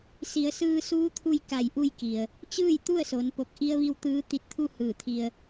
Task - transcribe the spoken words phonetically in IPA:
si˩˧ə̯sɯː˧suː˧˥t̪ʰu˧j ka˧˩jʔu˧jki˩ə̯ | t͡ɕɯː˥˨jt̪u˥˨ə̯so˩˧npo˧˩k̚ ʔi˧ə̯ʋi˧w t̪ɯː˧˥ t̪i˧˥t̚t̪ʰu˥˨ hɯː˧˩t̪ʰi˧ə̯

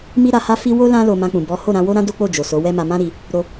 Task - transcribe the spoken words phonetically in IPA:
mi˦ɾa˧ha˦fi˦ wo˦ lã˦ lo˧mã˧k͡pũ˨ bɔ˨˦ho˦˨ ɾã˧wo˦ɾã˦ do˦k͡po˦˨d͡ʒo˨ so˨˦wɛ˦ma˧ mã˦ɾi˧ | ɾo˧

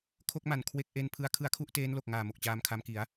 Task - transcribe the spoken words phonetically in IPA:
kʰo˥˩k̚ma˨˩n kʰwe˦˥k̚ʔe˧npʰɯ˧a̯ kʰɯ˦˥a̯kʰu˥˩ʔteː˦˥nlo˨˩k̚ ŋaː˨˩ mo˨˩k̚t͡ɕaː˧mkʰa˧mki˩˦a̯

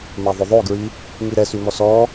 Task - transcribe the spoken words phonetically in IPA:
maðˤoðˤoɡɹi | ŋiɾɛsy mɔsɔ

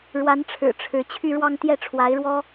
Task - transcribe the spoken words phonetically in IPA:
ɻwa˧˥nʈ͡ʂʰɻ̩˨˩ ʈ͡ʂʰɻ̩˧˥ t͡ɕʰy˥˧ɻwɑ˥˧ŋ t̪jɛ˥˩ʈ͡ʂʰwa˧˥ɪ̯ɻwɔ˥

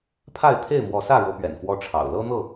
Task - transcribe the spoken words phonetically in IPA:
pʰa˥˨ɪ̯ t̪ʰe˥˨ɪ̯mwɔ˨˦sä˥˨ ɻɤ˦pɥɛ̰˨˩nfwɔ˦ʈ͡ʂʰɑ̰˨˩ʊ̯ lɤ˦n̪ɤ˥˨

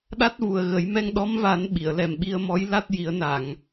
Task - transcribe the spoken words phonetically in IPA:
ɗa˦˥t̚vu˨˩ə̯ɣə˨˩˦j mɛ˧ŋɗɔ˧˥mva˨˩˦n ɓi˨˩˨ə̯lɛ˨˩mɓi˧ə̯mɔ˧˥j la˦˥t̚ ji˨˩˦ə̯na˨˩˨ŋ

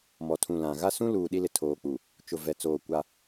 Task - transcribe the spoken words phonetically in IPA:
mɔ˨tʰũ˨ lã˨ ɣa˦sũ˦ luː˨ɗi˦lɪ˨ tʰoː˨k͡pu˨ | t͡ʃʊ˨vɛ˨t͡soː˨ kʷa˦

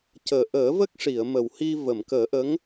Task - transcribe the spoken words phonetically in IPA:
cəː˨˩ ʔəː˨˩˦və˦˥k̚ʂi˨˩˨ə̯ mə˨˩whi˧ və˨˩˨mkəː˨˩˦ʔə˧˥ŋ

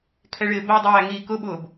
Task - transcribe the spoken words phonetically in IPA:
kʰɛɭɪːbɜdˤæː ŋiːkʊɓʊːb

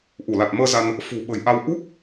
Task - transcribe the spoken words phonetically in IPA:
ʔu˧˩la˨˩t̚məː˧za˧n | fṳ˨˩ ɓə̤˨˩jʔa˧w ʔu˦˥k̚

